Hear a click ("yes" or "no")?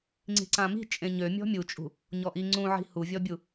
yes